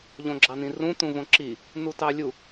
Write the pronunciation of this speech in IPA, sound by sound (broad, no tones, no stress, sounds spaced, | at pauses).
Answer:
ʎ õ ɡ͡ǁ ɑ n ĩ r ũ t ũ v õ ǁ i | n u t ɑ lʲ u